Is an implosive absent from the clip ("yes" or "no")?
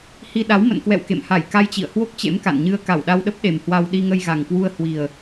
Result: no